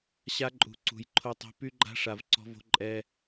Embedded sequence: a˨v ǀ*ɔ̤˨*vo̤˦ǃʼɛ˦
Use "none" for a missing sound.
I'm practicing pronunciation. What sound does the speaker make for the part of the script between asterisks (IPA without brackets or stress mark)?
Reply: ɔ̤˦